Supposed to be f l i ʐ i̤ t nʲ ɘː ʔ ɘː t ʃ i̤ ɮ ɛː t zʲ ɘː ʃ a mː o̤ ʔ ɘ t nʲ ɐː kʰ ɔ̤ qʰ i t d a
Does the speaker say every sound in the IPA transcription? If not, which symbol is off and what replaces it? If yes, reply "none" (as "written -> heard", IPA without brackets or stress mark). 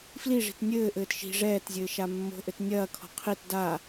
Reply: ɮ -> ʐ